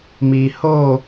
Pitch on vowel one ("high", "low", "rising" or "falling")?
low